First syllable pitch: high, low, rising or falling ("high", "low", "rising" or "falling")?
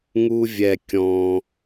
high